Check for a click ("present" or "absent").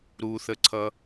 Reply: present